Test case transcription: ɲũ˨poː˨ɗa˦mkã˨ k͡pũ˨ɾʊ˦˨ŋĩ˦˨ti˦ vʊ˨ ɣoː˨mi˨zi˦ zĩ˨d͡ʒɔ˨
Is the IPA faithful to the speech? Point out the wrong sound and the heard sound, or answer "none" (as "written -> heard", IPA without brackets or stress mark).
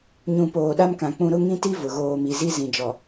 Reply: none